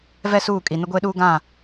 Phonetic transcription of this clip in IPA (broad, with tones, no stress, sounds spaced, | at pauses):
v ɛ˦ s uː˦˨ kʼ i˨ n ʊ˦ ɡʷ eː˦ ɗ uː˦ ɡ ã˦˨